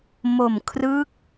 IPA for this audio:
m o˨˩ m kʰ r ɯ˦˥ k̚

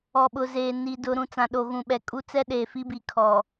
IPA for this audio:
ɔ˨ ɓ ʊ˨ z eː˨ n i˨ d ʊ˦ ɾ ũ˨ t͡s ã˨ ɗ o˨ ɣ ũ˨ ɓ ɛ˨ kʼ u˦ t͡s ɛ˦ ɗ eː˨ f i˦ b i˨ kʰ ɔ˨

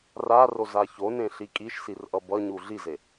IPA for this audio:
r a r o z a ç o n ẽ ɬ i kʼ i ʃ s i r ʔ ʌ b ʌ ɲ u ɮ i z e

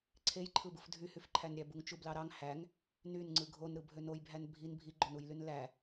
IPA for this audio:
ǀʰ e j ǃʰ ɯ b ɯ f dʱ y h y f ǃʰ æ n ɾʲ æ b u ŋ t͡ʃ u b l ɑ ɾ ɑ ŋ h æ ŋ | n y n ŋ͡ǀ ɯ ɡʱ o n ɾ ɯ bʱ ø n o j bʱ æ n bʱ i n bʱ i ɡ͡ǃ o n u j l y n l æ

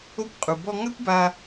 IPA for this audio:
o˧ kʷ qʼ u˩ b ɔ˧ ŋ a˥ kʷ b a˧

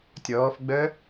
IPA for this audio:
tʲ ɔː f ɡ͡b œ

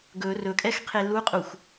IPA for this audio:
ɡ ɵ r ɵ kʼ ɛ x qʰ e l u qʼ u xʷ

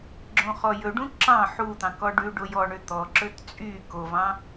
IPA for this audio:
ɡ͡ǁ õ χ ɔ j ɵ ɖ ũ ǁ ɑ̃ ħ u t̪ ɑ̃ k ɔ ɖ ʉ ɖ o j ɔ ɳ ø t̪ ɔ ǁ ɵ t t͡sʼ y k o v ɑ̃

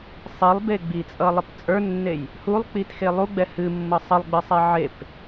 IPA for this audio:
sˤ i lˠ b e ɡ͡b i t͡sʼ ʌ lˠ ə p t͡sʼ ə˞ nː e j | h u lˠ k͡p i t x e lˠ u ɡ͡b ɛ h ɨ mː ɤ sˤ ə lˠ ɡ͡b ɨ sˤ ɛ ʕ e p

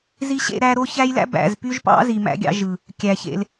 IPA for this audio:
z i˦ ɕ ḛ˦ ɾ æ˦ ɾ o˦ ç æ˦ j l æ̰˦ b æ̰˨ z p y˦ ʒ p ɑ̰˦ z i˨ m æ̰˦ ɡʲ ɑ̰˦ ʒ ɯ˨ | kʲ æ˨ ç ḛ˦ l

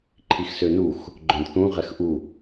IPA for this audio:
ǃʰ i x s ø n u x | ɡ͡ǃ œ̃ d θ ũ ʁ ɛ x ʔ u

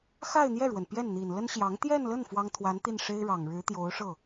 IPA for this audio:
x a˥˧ ɪ̯ n̪ j ɛ˥˩ ɻ w ə˩ n p j ɛ˥˩ n n̪ i˨˩ n l ə˥ n ɕ j ɑ˧˥ ŋ t̪ j ɛ˥˧ n l ə˥˩ n f w ɑ˥ ŋ t̪ʰ w a˧˥ n t̪ i˥˩ n ʂ e˥ ɪ̯ ɻ ɑ˨˩ ŋ ɻ ɻ̩˧˥ t̪ j o˧˥ ʊ̯ ʂ ɤ˥˩

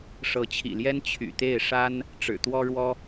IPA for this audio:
ʂ ɤ˧˥ t͡ɕʰ ḭ˨˩ l j ɛ˥ n t͡ɕʰ y̰˨˩ t̪ e˥˩ ɪ̯ ʂ a˥ n | ʈ͡ʂ ɻ̩˨˩ t̪ w ɔ˥ ɻ w ɔ˥

